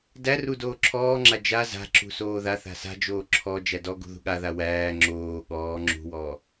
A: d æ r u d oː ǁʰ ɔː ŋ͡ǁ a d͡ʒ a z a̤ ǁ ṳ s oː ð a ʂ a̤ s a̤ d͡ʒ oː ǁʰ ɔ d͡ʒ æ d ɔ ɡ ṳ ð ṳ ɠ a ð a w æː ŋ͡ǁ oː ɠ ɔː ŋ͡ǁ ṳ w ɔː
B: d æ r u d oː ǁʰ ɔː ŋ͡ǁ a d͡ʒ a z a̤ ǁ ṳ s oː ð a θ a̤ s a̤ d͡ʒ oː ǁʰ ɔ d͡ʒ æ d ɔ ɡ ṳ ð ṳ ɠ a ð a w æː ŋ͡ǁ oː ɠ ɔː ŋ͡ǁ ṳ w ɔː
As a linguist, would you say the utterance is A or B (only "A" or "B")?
B